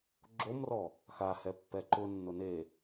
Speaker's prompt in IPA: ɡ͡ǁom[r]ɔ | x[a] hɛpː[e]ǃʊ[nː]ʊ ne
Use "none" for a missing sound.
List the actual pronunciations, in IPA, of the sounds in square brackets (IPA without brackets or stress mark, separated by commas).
r, a, ɛ, nː